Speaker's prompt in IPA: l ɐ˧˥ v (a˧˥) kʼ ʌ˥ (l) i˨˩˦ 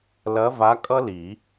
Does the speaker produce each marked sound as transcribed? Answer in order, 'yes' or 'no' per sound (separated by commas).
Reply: yes, yes